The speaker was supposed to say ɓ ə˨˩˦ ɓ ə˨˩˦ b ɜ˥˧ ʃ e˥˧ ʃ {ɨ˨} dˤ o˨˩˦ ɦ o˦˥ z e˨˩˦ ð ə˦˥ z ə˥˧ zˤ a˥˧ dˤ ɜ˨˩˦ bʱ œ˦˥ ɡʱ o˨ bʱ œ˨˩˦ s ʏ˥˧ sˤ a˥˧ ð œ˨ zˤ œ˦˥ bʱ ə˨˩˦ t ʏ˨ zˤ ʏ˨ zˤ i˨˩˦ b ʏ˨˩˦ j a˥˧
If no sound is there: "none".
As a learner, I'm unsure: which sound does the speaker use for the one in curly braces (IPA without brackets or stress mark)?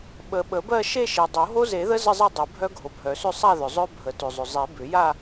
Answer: e˨